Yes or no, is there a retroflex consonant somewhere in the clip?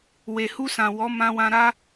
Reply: no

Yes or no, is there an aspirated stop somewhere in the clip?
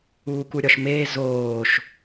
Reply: no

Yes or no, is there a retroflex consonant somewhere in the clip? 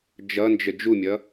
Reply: no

